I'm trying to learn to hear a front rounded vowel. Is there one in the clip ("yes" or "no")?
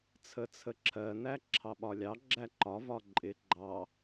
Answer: no